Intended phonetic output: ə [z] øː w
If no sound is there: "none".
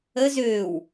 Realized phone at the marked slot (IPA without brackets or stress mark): z